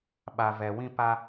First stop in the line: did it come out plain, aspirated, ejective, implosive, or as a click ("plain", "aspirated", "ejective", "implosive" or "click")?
implosive